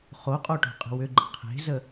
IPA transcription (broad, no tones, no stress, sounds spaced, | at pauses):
χ o qʼ o ʈ o̤ qʼ ə̤ w ʏ ɡ͡ǃ ə̤ qʰ e̤ z ə